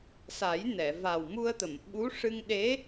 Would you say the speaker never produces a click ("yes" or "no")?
yes